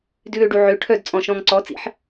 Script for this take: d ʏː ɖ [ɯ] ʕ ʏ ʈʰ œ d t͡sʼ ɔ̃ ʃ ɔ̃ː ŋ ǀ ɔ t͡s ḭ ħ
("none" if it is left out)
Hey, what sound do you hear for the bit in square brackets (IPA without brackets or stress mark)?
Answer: u